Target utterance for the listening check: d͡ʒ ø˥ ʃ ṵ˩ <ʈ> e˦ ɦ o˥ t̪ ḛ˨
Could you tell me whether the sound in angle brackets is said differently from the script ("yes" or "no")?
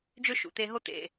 yes